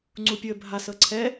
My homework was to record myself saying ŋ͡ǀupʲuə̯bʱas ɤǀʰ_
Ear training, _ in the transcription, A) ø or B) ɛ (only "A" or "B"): B